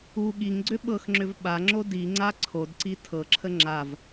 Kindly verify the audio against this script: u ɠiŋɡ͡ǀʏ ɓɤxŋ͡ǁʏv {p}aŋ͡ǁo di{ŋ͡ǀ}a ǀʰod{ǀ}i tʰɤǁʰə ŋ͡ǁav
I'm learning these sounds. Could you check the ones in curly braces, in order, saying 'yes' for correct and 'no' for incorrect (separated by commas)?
no, yes, yes